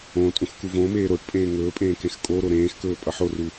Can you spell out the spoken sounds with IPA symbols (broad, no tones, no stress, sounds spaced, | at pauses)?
õ tʼ ũ x k u v õ m eː ɾ o ʈ pʼ ẽː ŋ ɵː pʼ ẽː k ẽ x kʼ o ɾ o ɾ ẽː x k ɵː pʼ ʌ ħ o r u